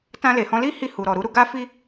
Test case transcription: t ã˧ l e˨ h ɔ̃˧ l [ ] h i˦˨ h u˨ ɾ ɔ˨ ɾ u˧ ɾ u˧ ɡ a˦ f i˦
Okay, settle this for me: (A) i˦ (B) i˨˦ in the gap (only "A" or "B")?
A